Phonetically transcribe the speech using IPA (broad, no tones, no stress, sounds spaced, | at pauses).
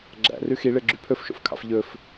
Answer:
ɡ͡ǁ æ̰ r ʉ x i ɭ e ɡ͡ǁ y pʰ ɵ f ʃ o̰ f kʰ ɑ̰ f ʎ ɵ f